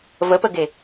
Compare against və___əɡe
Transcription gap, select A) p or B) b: A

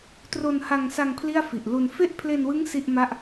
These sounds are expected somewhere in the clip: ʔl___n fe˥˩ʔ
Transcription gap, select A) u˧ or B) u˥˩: A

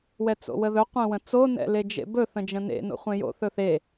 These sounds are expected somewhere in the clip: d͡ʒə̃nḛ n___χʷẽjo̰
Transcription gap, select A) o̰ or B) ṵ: A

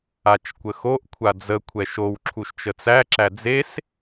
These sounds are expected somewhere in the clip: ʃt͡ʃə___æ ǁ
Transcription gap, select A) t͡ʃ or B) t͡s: B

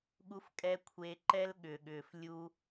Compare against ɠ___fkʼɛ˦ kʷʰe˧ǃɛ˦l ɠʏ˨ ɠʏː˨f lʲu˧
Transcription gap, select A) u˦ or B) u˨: A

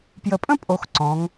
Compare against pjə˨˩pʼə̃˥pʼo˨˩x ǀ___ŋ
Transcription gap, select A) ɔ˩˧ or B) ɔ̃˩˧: B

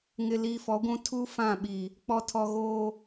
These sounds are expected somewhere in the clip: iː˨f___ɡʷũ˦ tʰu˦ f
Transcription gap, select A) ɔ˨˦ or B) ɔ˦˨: A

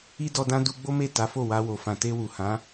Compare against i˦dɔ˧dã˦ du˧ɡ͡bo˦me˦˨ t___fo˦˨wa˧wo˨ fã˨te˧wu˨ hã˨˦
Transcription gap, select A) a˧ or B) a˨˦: B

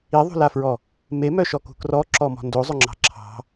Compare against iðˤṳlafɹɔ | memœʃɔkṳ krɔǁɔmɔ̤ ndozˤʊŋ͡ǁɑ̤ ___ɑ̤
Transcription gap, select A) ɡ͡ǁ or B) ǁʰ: B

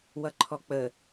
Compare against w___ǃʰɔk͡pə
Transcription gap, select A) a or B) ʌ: B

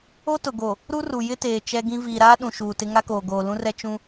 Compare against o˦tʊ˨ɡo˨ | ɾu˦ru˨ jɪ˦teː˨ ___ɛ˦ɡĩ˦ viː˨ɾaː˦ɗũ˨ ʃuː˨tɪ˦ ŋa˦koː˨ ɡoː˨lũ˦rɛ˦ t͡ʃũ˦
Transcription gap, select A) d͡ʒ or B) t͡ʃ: B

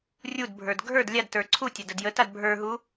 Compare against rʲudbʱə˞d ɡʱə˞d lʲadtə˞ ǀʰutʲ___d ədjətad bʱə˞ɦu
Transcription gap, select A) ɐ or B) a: B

